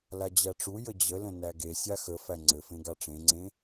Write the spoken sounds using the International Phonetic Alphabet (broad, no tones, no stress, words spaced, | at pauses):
lad͡ʑæʈ͡ʂu jəd͡ʑələ̃ næɡe sʲaxə fæŋ͡ǀɘfẽ ɡaʈ͡ʂẽŋ͡ǀẽ